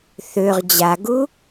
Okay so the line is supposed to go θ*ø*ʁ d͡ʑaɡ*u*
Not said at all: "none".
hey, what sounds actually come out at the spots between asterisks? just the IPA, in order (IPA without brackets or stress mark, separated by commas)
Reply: ø, u